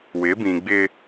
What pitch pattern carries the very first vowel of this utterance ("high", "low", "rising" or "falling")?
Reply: rising